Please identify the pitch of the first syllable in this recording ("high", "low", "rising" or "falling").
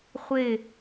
falling